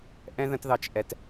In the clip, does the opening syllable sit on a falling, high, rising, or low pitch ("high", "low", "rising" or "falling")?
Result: high